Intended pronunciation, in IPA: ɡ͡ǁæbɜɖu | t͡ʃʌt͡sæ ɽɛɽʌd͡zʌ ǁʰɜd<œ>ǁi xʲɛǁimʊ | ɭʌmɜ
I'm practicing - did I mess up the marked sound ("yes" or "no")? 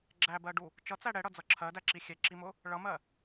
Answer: yes